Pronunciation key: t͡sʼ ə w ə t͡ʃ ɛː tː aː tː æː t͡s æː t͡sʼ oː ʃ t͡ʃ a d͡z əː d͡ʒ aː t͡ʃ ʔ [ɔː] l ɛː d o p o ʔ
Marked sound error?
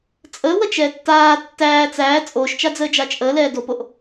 yes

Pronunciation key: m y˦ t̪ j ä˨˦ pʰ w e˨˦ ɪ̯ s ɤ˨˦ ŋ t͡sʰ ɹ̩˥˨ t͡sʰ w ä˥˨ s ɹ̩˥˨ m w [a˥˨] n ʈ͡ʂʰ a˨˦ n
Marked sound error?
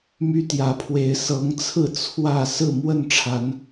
yes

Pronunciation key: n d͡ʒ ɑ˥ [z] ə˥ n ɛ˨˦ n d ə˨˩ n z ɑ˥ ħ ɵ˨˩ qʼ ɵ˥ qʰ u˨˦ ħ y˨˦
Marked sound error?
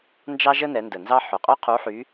yes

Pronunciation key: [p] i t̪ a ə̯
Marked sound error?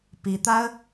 no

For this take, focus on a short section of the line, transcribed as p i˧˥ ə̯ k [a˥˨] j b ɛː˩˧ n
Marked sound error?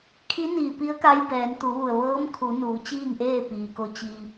yes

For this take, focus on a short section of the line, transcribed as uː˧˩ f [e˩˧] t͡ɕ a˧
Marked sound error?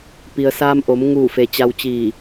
yes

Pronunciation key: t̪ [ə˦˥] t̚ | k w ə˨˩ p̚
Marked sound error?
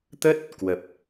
no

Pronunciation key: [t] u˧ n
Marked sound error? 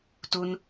no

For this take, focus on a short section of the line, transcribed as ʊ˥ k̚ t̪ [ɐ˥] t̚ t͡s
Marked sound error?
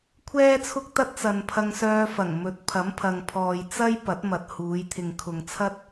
no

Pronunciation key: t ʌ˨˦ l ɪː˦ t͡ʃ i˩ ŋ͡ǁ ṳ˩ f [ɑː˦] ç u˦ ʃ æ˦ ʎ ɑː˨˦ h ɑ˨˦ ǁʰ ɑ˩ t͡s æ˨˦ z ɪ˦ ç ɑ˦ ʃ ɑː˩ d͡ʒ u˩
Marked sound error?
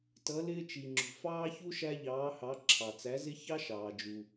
no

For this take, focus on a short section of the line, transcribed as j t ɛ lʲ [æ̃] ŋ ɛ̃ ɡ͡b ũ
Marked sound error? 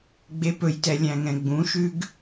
no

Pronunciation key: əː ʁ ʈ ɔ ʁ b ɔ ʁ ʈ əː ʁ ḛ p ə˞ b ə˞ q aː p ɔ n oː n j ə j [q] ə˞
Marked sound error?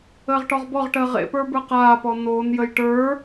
yes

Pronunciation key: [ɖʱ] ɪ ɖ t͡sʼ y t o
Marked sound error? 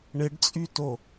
yes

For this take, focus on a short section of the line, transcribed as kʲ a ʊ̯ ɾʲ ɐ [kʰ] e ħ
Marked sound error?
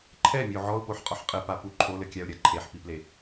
yes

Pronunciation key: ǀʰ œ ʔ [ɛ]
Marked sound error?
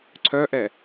no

